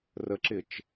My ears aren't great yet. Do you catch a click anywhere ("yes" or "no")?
yes